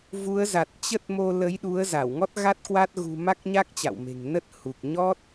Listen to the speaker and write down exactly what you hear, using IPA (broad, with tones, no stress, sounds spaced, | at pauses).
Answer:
v u˨˦ ə̯ z a˨˩ t̚ t͡ɕ ə˦˥ t̚ m o˧ l ə˨˦ j ɗ u˨˦ ə̯ z a˧˩ w ŋ ɔ˦˥ t̚ ɣ a˦˥ t̚ k w a˦˥ t̚ ɣ ṳ˨˩ m a˦˥ k̚ ɲ a˦˥ k̚ t͡ɕ a̰˧˨ w m e̤˨˩ ŋ n ə˦˥ t̚ h u˨˩ k̚ ɲ ɔ˦˥ t̚